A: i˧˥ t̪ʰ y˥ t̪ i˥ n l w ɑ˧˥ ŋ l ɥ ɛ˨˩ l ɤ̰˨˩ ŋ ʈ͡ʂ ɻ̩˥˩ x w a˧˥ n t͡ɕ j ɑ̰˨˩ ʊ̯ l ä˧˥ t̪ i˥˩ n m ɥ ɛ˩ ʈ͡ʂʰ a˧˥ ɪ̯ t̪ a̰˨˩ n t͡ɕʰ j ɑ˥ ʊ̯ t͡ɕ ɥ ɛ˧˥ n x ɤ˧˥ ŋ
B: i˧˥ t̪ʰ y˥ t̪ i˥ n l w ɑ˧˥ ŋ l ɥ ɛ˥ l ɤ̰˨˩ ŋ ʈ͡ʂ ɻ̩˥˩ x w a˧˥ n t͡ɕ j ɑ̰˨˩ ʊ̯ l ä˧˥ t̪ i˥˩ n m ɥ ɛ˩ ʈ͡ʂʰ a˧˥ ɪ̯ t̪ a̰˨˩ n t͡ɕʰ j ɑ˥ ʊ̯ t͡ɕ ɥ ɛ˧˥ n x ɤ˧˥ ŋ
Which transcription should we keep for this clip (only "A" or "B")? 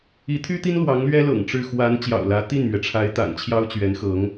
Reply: B